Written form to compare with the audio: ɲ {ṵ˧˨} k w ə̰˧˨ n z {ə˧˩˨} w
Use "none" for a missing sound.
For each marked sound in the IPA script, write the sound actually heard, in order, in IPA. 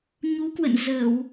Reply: u˨˦, ə˧˩˨

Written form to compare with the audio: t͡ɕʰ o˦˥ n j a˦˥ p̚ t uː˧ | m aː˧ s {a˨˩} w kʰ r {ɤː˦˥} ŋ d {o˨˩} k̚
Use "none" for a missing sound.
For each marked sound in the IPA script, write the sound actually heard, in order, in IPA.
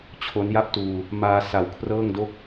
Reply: a˨˩, ɤː˥˩, o˥˩

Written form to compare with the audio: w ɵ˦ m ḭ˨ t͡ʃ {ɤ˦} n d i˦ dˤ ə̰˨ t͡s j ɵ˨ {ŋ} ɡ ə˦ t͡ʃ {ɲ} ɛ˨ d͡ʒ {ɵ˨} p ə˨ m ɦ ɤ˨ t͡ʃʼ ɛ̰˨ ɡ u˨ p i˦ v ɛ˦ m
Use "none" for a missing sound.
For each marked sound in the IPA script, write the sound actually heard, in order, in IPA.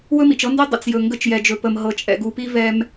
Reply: ɤ˦, ŋ, j, ɵ˨

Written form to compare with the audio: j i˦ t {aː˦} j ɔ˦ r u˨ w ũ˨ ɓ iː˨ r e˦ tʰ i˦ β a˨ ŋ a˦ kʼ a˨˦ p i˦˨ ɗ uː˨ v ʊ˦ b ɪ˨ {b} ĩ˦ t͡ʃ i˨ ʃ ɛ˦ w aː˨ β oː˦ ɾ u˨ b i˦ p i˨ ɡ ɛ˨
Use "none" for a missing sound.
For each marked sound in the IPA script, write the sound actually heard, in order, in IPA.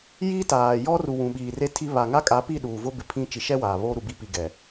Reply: aː˨, pʰ

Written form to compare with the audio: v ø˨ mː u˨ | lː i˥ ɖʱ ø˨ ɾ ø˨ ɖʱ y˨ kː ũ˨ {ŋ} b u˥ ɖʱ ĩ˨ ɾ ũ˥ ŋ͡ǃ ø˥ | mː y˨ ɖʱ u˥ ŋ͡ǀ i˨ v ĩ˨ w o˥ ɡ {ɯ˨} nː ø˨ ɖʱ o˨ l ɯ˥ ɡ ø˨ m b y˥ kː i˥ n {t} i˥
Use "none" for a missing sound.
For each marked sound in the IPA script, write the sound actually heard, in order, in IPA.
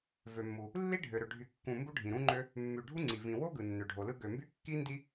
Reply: m, ɯ˨, d

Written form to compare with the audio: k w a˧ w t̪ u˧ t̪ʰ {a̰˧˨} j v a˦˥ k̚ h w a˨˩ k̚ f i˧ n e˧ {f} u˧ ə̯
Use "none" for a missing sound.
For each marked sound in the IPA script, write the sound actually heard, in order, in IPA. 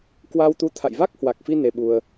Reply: a̰˧˨, ɓ

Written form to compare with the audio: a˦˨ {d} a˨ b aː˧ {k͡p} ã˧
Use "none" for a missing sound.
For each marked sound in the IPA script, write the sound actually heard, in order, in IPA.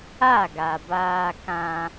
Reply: ɡ, k

